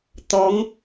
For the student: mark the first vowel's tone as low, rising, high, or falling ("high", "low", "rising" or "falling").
rising